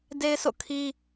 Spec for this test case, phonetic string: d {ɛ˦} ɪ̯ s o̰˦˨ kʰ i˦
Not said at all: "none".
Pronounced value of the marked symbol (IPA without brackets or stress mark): e˦